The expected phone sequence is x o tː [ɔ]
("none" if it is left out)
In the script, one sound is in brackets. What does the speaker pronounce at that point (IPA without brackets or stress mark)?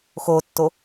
o